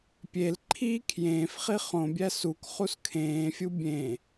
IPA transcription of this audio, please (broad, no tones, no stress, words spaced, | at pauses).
pʲelǃʰiː kʰjẽːf χiχõbʲæ suk χuskʰẽːfʲu bʲẽ